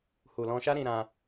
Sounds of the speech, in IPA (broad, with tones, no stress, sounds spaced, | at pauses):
h u˨ l ɔ̃˧ ʃ a˦ ɾ ĩ˧ ɾ ã˧